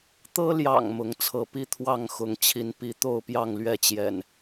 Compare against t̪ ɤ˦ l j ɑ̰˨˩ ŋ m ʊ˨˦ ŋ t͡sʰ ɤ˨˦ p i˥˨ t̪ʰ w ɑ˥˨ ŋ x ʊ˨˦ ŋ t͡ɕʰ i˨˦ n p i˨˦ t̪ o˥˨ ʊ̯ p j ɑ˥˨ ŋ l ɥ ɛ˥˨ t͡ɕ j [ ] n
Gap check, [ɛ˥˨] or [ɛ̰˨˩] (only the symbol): ɛ̰˨˩